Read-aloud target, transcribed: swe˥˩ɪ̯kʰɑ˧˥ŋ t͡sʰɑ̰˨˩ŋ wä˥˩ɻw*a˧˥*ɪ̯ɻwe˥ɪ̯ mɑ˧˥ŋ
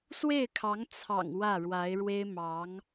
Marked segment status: correct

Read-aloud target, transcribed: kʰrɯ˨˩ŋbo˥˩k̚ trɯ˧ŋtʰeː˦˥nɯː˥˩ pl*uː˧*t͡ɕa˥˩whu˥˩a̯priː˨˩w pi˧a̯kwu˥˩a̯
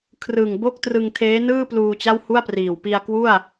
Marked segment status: correct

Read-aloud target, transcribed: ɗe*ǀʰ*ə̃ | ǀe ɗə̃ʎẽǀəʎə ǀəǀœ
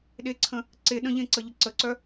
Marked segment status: correct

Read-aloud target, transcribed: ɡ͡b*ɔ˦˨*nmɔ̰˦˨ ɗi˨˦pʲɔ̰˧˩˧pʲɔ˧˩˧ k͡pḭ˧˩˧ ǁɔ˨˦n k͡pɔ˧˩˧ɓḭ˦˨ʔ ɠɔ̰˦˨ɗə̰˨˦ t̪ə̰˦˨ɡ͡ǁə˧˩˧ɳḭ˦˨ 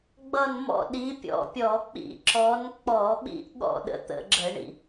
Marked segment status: incorrect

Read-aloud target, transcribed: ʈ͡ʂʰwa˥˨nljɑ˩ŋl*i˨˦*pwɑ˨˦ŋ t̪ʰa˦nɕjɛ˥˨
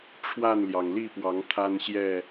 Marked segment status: incorrect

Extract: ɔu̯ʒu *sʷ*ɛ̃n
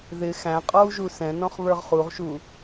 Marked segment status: incorrect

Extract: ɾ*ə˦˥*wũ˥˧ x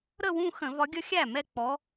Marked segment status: incorrect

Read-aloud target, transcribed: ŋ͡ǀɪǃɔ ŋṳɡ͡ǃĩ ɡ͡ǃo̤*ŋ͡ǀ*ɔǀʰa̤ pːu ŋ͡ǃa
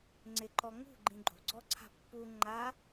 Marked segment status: incorrect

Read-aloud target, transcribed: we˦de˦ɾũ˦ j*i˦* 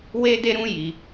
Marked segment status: correct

